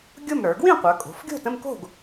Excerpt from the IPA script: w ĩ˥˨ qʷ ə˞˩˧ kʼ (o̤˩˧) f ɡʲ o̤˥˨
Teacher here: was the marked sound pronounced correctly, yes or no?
yes